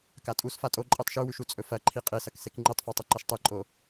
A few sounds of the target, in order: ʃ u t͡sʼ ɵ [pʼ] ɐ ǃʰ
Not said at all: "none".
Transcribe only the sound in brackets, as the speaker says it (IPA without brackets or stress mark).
f